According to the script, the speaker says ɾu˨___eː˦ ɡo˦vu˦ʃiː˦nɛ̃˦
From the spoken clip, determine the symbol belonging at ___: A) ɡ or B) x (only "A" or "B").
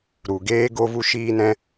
A